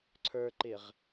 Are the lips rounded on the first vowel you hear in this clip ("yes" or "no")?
no